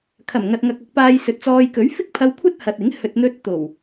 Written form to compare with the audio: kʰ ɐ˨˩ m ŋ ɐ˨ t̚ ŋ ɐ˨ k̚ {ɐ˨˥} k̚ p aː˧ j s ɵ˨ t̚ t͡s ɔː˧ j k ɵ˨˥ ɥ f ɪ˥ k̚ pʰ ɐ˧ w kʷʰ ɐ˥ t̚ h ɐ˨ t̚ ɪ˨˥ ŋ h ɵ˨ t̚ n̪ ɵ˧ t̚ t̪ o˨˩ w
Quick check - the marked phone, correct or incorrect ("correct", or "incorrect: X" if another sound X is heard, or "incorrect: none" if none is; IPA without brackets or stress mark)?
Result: correct